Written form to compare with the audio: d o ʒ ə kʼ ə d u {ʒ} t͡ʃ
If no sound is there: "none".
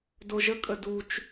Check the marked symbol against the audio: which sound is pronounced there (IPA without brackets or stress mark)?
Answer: none